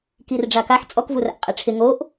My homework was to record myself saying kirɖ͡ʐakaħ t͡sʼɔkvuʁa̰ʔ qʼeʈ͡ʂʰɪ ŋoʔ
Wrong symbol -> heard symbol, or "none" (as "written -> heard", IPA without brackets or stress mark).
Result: ʁ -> r